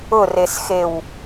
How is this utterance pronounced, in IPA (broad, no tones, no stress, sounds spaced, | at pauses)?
ʊ r e s x e w